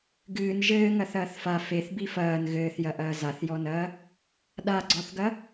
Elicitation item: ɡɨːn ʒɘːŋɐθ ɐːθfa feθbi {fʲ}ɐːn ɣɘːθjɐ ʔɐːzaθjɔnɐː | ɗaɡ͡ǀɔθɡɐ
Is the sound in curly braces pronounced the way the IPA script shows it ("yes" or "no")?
no